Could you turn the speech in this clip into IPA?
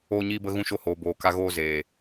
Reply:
oː˧ɲiː˧bə˧ ɣũ˧ʃo˧hoː˨ boː˨ka˧ ɣoː˧ zeː˨

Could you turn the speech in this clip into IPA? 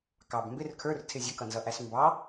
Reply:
kɑb mbɪr kʰə˞rtʰɪ zʲəkʌnzʌʔæs mbɑ

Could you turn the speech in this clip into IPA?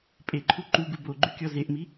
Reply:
pʼeǃʰu ǃuɡu boɡ͡ǃykʲɔ zeʔmi

